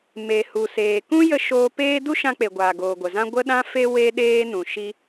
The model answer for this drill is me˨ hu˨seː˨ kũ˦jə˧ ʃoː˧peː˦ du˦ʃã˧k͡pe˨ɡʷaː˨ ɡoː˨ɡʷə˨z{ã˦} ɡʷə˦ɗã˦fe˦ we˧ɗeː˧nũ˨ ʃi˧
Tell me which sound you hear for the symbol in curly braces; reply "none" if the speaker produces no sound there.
ã˦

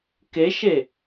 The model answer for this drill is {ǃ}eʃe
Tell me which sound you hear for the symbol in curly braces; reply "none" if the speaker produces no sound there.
k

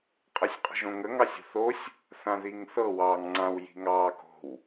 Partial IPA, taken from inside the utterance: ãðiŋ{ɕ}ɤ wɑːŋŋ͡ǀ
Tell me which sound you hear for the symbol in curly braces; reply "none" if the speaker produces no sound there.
θ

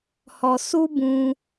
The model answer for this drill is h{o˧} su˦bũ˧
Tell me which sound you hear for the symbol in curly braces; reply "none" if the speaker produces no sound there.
ɔ˧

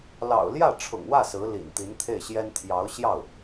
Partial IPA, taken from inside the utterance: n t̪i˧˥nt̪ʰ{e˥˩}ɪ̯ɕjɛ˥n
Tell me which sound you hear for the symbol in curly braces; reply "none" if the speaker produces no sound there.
e˥˩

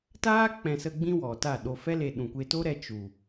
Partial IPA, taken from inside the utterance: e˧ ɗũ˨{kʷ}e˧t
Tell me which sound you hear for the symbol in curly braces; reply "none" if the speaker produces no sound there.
kʷ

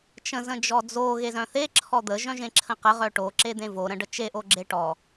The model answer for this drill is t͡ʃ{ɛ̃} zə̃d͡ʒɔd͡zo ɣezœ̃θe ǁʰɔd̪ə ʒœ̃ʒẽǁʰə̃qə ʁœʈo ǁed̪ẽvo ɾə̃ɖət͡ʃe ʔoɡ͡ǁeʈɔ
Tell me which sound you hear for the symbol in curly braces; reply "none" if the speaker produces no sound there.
ə̃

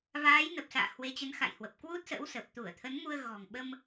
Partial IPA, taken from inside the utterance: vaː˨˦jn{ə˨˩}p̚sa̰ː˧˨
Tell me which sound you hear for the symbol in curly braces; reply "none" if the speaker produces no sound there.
ə˨˩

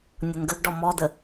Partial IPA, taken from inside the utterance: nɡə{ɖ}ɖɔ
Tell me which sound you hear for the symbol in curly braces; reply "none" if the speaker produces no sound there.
ɡ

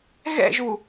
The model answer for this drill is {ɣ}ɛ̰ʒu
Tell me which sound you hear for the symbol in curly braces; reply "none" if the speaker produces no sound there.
ɣ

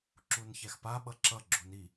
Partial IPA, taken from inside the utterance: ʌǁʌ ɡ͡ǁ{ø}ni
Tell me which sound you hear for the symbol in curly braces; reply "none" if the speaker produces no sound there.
u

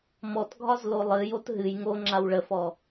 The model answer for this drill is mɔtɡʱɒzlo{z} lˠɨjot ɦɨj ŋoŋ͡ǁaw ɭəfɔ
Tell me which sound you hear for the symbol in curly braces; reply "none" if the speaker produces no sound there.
none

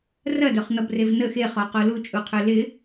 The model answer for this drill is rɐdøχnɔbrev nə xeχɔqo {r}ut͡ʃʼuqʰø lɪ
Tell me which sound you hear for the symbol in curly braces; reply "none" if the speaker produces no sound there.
l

